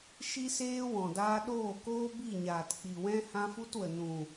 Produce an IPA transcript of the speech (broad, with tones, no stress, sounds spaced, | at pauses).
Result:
ʃ i˦ s eː˦ w ɔ̃˨ d aː˧ ɗ oː˦˨ k oː˦ b i˦˨ ɲ aː˨ t k͡p i˨ w ɛ̃˦ h ã˦ f u˦ t w ə˨ n ũ˨